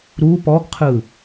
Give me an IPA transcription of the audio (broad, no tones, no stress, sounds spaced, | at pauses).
ɾ u p ɔ ɡ qʰ ɯ